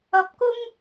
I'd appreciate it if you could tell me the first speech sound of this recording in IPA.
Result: ɐ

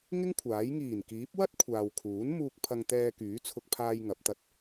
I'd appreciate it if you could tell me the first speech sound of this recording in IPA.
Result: ŋ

